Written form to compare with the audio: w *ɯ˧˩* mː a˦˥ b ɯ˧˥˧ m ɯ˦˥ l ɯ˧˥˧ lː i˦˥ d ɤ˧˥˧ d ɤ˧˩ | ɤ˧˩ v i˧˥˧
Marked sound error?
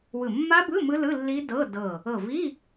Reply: no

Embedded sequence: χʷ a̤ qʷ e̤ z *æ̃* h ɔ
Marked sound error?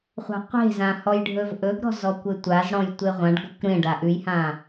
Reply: yes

